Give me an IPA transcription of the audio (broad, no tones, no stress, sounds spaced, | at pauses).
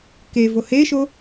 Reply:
k e v o h e ʃ o